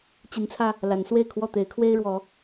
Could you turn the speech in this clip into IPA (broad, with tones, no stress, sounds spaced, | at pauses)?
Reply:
t͡ɕ i˨˦ n t͡sʰ ä˧ | l a˨˦ n s w e˥˨ ɪ̯ kʰ w ɔ˥˨ t̪ e˨˦ ɪ̯ kʰ w e˦ ɪ̯ ɻ w ɔ˨˦